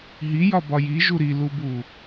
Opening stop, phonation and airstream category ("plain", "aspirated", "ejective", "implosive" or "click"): plain